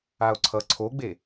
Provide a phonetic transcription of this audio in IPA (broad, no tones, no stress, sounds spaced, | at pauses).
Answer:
a o̯ ǀʰ ʌ ǀʰ o ɡ͡b e